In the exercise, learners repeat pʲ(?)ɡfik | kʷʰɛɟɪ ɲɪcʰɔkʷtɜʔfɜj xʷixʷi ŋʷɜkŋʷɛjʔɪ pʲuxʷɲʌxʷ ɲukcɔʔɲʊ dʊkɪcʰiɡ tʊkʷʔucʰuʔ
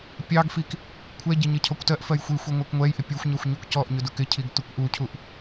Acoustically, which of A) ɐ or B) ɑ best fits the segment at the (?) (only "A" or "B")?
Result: B